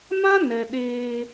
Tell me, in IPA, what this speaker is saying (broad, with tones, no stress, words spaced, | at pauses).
mã˦nɛ˨ ɗeː˦